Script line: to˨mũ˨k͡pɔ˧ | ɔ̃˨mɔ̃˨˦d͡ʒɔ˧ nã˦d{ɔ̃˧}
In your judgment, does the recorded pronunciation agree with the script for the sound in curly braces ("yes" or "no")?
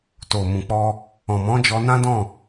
no